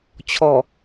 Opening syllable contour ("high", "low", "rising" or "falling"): low